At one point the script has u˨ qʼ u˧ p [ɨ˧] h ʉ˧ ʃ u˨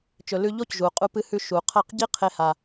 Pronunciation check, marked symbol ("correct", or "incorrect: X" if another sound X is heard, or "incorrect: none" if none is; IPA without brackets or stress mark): correct